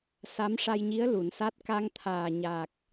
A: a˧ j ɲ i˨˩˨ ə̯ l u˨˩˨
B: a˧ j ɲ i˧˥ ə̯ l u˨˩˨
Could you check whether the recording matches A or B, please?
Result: B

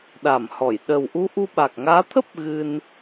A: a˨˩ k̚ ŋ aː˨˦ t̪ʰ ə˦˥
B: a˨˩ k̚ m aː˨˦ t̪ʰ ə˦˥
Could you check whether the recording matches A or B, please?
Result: A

